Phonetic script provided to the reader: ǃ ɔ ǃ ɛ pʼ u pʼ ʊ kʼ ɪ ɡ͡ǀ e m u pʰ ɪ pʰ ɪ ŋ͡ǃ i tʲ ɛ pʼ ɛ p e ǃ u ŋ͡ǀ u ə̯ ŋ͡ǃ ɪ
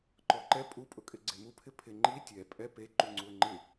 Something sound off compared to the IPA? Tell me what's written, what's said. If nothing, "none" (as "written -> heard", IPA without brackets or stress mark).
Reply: none